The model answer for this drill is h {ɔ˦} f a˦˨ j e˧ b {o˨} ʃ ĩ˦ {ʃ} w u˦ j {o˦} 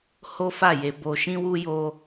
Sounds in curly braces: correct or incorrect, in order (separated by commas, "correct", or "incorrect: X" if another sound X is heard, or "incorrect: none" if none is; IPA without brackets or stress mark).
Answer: incorrect: o˦, incorrect: o˧, incorrect: none, correct